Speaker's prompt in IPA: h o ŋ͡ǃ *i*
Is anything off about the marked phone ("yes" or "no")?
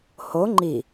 no